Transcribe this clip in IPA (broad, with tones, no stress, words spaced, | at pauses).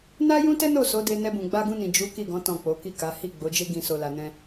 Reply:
na˦ jũ˦tɛ˦no˦˨ so˨˦de˧nɛ˧ bũ˨ɡ͡ba˧ɡũ˧nĩ˨ d͡ʒu˨˦ ki˦˨ɡɔ̃˨˦ tɔ̃˦˨k͡po˨˦ ki˦˨ka˨˦ hi˦˨ɡ͡bo˨˦d͡ʒe˦ɡĩ˧ so˧la˧nɛ̃˦